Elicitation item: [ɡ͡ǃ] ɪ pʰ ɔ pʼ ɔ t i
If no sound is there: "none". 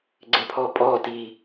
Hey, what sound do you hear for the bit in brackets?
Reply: ɡ͡ǀ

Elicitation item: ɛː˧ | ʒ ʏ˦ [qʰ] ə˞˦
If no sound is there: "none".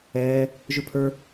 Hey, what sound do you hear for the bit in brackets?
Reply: pʰ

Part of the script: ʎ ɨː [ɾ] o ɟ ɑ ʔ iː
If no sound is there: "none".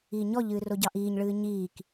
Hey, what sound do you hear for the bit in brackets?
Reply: r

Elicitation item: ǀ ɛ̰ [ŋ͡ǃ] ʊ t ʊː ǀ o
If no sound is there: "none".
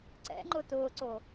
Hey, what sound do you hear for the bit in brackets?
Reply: ŋ͡ǃ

